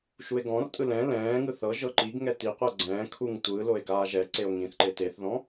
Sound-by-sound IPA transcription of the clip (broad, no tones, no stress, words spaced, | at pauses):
ʃue̯ɡɔ̃rtʼɯ lɛ̃ lɛ̃ː ŋɯθɤʒɤ ǃiɡŋɛ tiqʷɤ ɡ͡ǀɛ̃ː kʰuŋ tʷɯ loe̯ɡaːʒɛǀeo̯ ŋĩθǃe teθðɔ̃